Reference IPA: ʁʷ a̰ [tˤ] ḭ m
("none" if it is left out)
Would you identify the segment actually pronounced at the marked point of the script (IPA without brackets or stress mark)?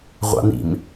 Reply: n